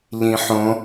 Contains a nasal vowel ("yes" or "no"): yes